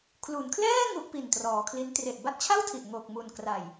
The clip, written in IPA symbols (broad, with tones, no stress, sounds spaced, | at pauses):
kʰ l u˩˦ n kʰ l ɛː˥˩ ŋ u˦˥ ʔ p i˨˩ n t r ɔː˩˦ kʰ l i˦˥ n t r e˨˩ ʔ b a˥˩ t̚ t͡ɕʰ a˥˩ w tʰ i˨˩ ʔ ŋ o˨˩ k̚ m u˨˩ n k r a˨˩ j